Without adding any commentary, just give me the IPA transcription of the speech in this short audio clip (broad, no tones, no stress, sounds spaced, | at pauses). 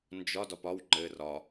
n d͡ʒ ɒ d ɒ p ɒ w ŋ͡ǃ ɘ r ɒ